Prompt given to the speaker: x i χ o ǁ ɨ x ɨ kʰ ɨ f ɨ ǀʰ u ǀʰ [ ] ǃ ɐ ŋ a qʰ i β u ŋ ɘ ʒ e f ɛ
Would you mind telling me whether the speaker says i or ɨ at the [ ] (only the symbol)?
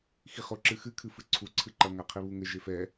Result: ɨ